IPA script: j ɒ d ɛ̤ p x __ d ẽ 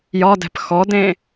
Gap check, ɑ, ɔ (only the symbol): ɔ